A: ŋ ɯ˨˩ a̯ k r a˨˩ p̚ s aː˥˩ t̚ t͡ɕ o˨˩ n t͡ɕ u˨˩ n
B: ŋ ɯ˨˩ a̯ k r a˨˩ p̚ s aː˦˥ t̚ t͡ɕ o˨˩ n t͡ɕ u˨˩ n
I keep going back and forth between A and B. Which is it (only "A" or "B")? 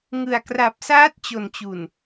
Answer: B